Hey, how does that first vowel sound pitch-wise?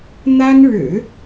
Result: high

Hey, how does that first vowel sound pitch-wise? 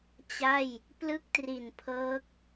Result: falling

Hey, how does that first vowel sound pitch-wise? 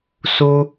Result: high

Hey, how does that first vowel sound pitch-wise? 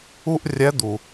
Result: high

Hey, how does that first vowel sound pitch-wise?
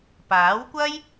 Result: rising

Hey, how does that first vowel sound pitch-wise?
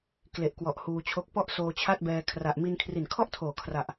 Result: low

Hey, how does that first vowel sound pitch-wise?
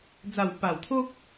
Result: low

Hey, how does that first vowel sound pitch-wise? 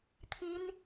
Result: high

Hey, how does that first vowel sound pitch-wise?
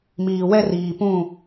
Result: low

